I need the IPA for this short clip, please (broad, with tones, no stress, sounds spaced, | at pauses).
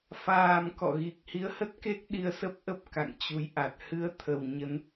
f aː˨˩ m k ɔ̰˧˨ ɣ i˨˩ k̚ h i˨˦ ə̯ h ə˦˥ t̚ k e˦˥ k̚ ɗ i˧ ə̯ s ə˦˥ p̚ ʔ ə˦˥ p̚ k a̰˧˨ ŋ t͡ɕ u˨˦ j ʔ a˨˩ t̚ h ɨ˨˦ ə̯ t̪ʰ ə˨˩ w ɲ ə˨˦ n